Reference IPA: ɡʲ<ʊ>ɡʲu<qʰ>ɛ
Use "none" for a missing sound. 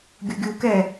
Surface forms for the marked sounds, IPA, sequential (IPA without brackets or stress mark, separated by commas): ʊ, k